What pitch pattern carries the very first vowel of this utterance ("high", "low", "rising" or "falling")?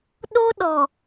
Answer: high